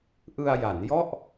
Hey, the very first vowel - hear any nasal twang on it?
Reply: no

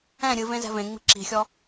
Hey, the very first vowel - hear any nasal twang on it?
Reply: yes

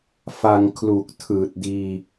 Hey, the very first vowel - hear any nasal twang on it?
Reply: no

